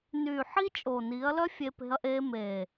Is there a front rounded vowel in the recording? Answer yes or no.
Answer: yes